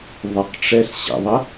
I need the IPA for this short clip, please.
ðˤ ə q ʈ͡ʂ ɛ s ɕ ə̰ ðˤ ə

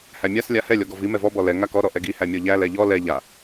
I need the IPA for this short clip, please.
h æ mʲ a s lʲ a h ɛ lʲ ɔ ɡ ɔ v i m ɛ v ɔ b ɔ l ɛ ŋ a k ɔ ɾ ɔ ʔ ɛ ɡ i h æ mʲ ɔ ʎ æ l ɛ ʎ ɔ l ɛ ʎ a

